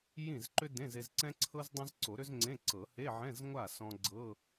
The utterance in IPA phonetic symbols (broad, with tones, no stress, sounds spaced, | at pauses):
j ĩ˥˩ z ǃ ʏ˥ d ẽ˧˥˧ z e˧ z ǀ ɛ̃˥ ǀʰ ɤ˥ z dˤ ã˥ z ǀ o˨˩˦ ɾ ʏ˥ z ŋ͡ǀ ẽ˧˥˧ ǀ ɤ˨˩˦ h e˧˥˧ ʕ ɛ̃˧˥˧ z ŋʷ a˥˩ s ɔ̃˧ ɡ͡ǀ ɤ˧˥˧